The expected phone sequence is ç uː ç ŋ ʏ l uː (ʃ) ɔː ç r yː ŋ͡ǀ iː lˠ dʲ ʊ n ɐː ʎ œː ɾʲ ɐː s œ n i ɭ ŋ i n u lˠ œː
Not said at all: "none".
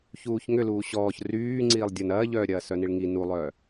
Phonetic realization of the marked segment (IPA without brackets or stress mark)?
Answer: ɕ